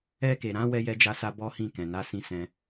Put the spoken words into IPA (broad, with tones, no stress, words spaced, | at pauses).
ɛ˧ke˨ɾã˧ wɛ˧jɛ˧d͡ʒa˧sa˧ bɔ˦hĩ˦˨ kɛ̃˨na˧sĩ˧sɛ̃˧